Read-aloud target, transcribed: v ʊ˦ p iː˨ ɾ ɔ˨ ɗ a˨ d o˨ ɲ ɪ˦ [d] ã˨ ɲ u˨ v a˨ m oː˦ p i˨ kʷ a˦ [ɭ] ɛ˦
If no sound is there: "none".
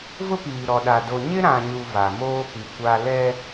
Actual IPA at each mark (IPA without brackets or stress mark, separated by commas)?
ɾ, l